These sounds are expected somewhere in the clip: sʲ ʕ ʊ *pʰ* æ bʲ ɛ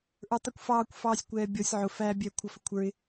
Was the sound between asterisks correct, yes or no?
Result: no